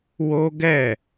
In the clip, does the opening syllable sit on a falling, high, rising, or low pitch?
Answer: high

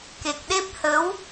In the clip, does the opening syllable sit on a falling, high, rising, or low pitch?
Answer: low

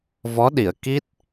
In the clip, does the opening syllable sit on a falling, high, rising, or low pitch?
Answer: rising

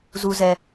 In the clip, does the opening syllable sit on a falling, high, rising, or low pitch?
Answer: low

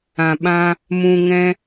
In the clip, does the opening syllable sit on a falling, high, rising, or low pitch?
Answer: low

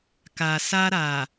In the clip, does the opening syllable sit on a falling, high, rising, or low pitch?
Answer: low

